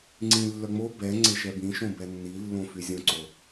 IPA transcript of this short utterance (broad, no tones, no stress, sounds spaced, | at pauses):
ŋ͡ǀ ĩ lː œ ŋ͡m o b ɛ ŋ͡ǀ e ʃ ɛ b ĩ ʃ õ b ɛ nː i lː õ f y zʲ õ ǀ o